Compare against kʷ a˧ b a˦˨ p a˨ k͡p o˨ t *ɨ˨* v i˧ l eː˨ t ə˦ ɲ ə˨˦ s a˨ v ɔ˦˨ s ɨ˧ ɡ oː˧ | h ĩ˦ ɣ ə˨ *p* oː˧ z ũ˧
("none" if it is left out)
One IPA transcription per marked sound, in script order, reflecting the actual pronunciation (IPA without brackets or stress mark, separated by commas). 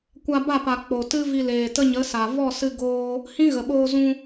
ɨ˦, ɓ